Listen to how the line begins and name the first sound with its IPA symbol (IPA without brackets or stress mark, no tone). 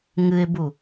ŋ